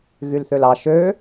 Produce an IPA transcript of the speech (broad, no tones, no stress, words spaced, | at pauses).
ɣylθølɑ ʃø